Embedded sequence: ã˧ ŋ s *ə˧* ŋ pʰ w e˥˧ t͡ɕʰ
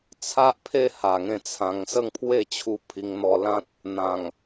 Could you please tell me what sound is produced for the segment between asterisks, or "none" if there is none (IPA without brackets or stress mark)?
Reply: ə˥˧